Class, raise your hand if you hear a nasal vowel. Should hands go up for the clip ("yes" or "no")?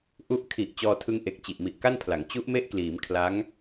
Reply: no